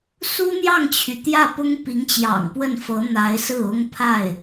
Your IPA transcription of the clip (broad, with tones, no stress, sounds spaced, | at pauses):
s u˥ n̪ j ɑ˥˩ ŋ t͡ɕʰ y˩ t̪ j ä˥˩ p ʊ˥ ŋ p i˧˥ ŋ t͡ɕ j ɑ̰˨˩ ŋ p w ə˥˩ n f ɤ˧˥ n̪ a˧˥ ɪ̯ s ɹ̩˥˩ ʊ˥ ŋ pʰ a˥˩ ɪ̯